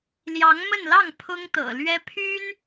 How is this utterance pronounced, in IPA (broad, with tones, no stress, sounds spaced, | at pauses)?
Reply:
l j ɑ˧˥ ŋ m ə˥˧ n l ɑ˥˩ ŋ pʰ ʊ˥ ŋ t̪ ɤ̰˨˩ l ɥ ɛ˥ pʰ y˥ n